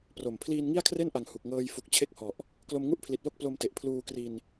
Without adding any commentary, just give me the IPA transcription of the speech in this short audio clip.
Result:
pro˨˩m pʰliː˧nŋi˥˩a̯kʰre˥˩nʔa˨˩ŋ hu˨˩k̚ŋɤː˧j fu˨˩k̚ t͡ɕʰe˥˩k̚hɔ˨˩ʔ | klo˧mŋu˥˩ʔpʰli˨˩t̚ lo˥˩k̚plo˧mte˨˩ʔ pʰluː˧kri˧n

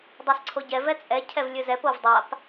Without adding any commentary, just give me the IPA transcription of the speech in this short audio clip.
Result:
dˤasǀʰoɟɛ vɛt͡sʼɛ cʰɛvlʲɵzɛp ovdˤap

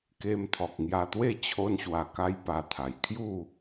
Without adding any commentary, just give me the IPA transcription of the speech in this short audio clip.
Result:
ke˧mt̪ʰɔ˨k̚ŋja˧t̪we˥˧ t͡ɕʰo˧nɕwa˨˩ka˧j pa˧t̪ʰa˨˩j kʰju˥˧

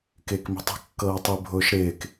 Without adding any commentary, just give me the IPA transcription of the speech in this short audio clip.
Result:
kɪːkmi̤tˤɛ̤ kːɤːtˤi bʱʊːʃɾɪːk

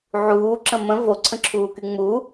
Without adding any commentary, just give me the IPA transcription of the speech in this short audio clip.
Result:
ʕuːǁə̃ mə̃ voǀʰə̃ǁʰuːky ŋ͡mu

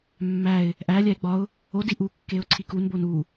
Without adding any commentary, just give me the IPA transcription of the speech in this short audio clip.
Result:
mːæɪ̯ | ʔælʲæɪ̯ ɡ͡bɒʊ̯ | o diʔukːeʊ̯ ǀʰikunbon u

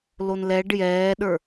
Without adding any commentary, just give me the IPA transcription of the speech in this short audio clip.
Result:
lonlɛɖ jɛːɗə˞

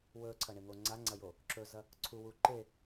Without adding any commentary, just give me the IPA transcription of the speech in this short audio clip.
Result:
wɵːǀʰɐɳeŋo ŋ͡ǀaŋ͡ǀɐjo | ǁɵzɐ | ǀʰuwuː ǃe

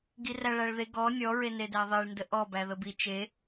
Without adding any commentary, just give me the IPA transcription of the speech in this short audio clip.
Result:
ɡiræɭæɭðe ɡɔ nʲɔ ɹenedæðˤeɭ ndəʔɔ bæðəbi t͡ʃe

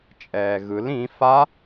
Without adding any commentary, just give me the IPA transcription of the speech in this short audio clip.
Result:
t͡ʃʼɛːɣɯl ĩ fa

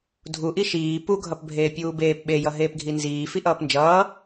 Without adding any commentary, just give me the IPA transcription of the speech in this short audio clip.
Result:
dʱuʔi ʃiː pu ɡʱʌpbʱeːpʲuːbeːp ɓejʌɦeːpɡʱi nziː fiʔʌːpnd͡ʒʌː

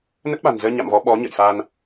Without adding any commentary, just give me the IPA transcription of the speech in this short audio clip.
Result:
nə˦˥t̚ɓa̤˨˩nzəː˧ ɲa̰˧˨mvɔ˨˦ ɓɔ˨˦ɲə̰˧˨j fa˧n

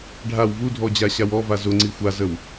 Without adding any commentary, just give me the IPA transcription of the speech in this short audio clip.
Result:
ɖʱaw vudʱɔd͡ʑaɕaw ɔva zʊŋ͡ǀi xʷazəw

